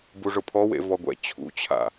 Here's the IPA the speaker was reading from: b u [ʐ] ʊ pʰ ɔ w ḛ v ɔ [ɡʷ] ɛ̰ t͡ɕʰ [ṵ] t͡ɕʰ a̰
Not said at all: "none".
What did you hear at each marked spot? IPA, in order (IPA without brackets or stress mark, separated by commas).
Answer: ʐ, ɡʷ, ṵ